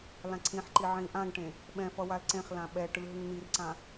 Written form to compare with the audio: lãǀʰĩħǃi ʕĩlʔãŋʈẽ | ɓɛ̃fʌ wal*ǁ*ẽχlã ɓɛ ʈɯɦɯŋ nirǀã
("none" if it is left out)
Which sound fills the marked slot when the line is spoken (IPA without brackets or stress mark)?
ǀ